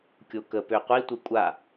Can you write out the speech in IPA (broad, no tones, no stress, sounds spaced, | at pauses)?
kʲ o k ə p ø qʷ i tʷ i kʷʼ a